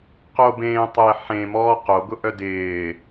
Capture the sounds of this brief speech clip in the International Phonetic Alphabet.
q o b ẽː tˤ ɪː ħ ẽ m ɔː q o ɡ ʊ ʔ œ d ɪː

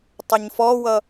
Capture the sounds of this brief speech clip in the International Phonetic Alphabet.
tˤ ə ɲ f ɔ w ʌ

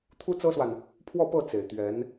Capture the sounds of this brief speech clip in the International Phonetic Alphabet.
t̪ʰ u˥ t͡s ɤ˥ s w a˨ n | pʰ w ɔ˥˧ p ɤ˥˩ t͡s e˨˩ ɪ̯ t̪ ɥ ɛ˧˥ n

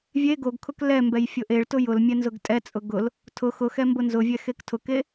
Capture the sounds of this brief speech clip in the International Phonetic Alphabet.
vʲ e ɡ o ɡ kʰ ʊ k l ɛ m b ɛ j fʲ ʊ ʔ e ɭ t ʊ j ʊ l mʲ ɛ n z ʊ ɡ tʼ ɛ t͡sʼ ʊ ɡ ʊ l | tʰ ʊ x ʊ x ɛ m b ʊ n z ʊ vʲ ɛ x e k tʰ ʊ k e

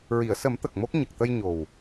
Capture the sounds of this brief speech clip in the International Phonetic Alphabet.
ɹ i˨˩˨ ə̯ s ə˨˩˦ m t̪ ə˨˩ k̚ m o˦˥ k̚ ɲ ə˨˩ k̚ t̪ ə˧ j ɲ o˨˩ w

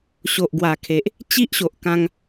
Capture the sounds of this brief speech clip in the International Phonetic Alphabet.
ɕ o˨ ʔ ɡ w a˨˩ kʰ e˨ ʔ | t͡ɕ i˦ ʔ ɕ o˨ ʔ k ã˧ ŋ

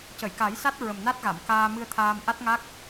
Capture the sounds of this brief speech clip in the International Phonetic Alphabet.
c ə˨˩˨ j k a˨˩˦ j s a˦˥ t̚ ɹ ə˨˩ m n a˦˥ t̚ ɣ a˨˩˨ m k aː˧ m ɨ˧ ə̯ t̪ʰ aː˧ m ʔ a˦˥ t̚ ŋ a˦˥ k̚

